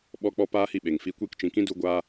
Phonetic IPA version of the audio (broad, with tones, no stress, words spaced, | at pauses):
ɓɔ˧k͡pɔ˧ paː˦hi˦˨ɓe˨ŋfi˧ kʷiː˧kt͡ʃĩ˨kĩ˦ du˧ɡʷaː˦